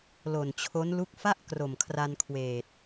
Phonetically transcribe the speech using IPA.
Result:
lo˨˩nt͡ɕʰo˦˥nlu˥˩k̚ fa˥˩ʔ kro˨˩mkʰra˧nkʰweː˨˩t̚

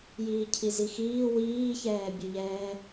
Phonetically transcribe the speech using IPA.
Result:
jiːcʰizixiː wiːçɛːbʲɵʎɛː

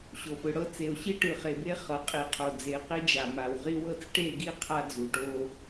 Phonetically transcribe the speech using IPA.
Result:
ɕo˨pɯ˨ ɽɤ˦t͡se˨o̯ ɕi˦ʈɯ˨χe˨be˦ χɤ˨ qʼi˨qʰo˨ d͡ze˨˦qi˦d͡ʒa˨ ma˨wʁi˦wɤ˦t͡s ʈe˦˨ɡi˦ qʰa˦d͡zu˨ʈo˦

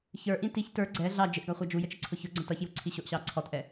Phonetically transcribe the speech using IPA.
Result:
çə˞ʔĩ tiç tə˞ ɡ͡ǀɛ ɮɑ d͡ʒɪʔɡɑχʷɑ d͡ʒujət͡ʃəǀʰʊ çʊɡ͡ǀə̃ tʌçjuǀʰi ɕʊʔɕɑ ǀʰɔtʔɛ

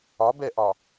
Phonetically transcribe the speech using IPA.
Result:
ɒbɛʔɒ

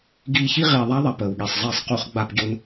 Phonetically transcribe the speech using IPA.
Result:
ɡiː˧çi˦ ʁiː˧ ðˤa˦ðˤɐ˧ pəː˨wɠi˨sˤzˤiː˧sˤ qu˧χ ɡ͡ba˧pɟʊ˧n

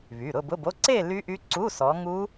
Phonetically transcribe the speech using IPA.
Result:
βy˩˧˩ɾʊ˥˧ bʊ˧˥˧bo˧˥˧ ǀe˥˧ ly˦˥ʔy˦˥ ǀu˧˥˧sɔ˨˦ŋu˦˥

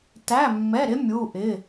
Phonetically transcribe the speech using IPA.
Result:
tæ˧˥˧mːɛ˧˥˧ɾɪ˦˥ mʲu˧˥˧ʔɪ˧˥˧

